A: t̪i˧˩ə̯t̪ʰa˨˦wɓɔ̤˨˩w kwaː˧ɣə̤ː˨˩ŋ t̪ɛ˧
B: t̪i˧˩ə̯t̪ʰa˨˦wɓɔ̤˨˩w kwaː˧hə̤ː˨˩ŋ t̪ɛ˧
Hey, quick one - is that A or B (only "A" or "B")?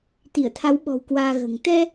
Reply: A